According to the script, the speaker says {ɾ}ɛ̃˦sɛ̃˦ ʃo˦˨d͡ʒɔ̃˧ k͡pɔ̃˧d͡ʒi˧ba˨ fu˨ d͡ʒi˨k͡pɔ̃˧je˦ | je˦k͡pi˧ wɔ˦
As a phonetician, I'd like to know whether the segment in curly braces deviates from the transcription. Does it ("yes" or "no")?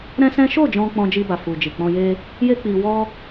no